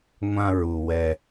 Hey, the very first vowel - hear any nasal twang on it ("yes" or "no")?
yes